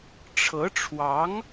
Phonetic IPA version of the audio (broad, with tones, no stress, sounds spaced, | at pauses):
ʈ͡ʂʰ ɤ˧˥ ʈ͡ʂʰ w ɑ˧˥ ŋ